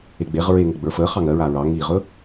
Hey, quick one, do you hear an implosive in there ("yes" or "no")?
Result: no